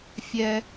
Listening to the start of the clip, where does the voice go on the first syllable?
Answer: low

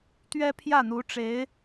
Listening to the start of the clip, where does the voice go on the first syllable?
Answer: high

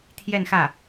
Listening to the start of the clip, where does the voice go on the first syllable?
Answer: falling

